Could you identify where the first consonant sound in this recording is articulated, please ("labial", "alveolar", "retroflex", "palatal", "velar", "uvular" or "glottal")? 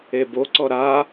labial